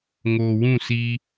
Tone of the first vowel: low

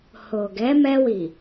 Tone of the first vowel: low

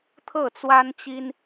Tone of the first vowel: falling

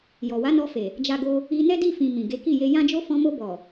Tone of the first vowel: low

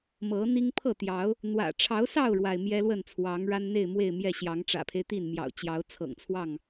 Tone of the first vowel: rising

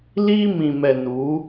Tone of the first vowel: high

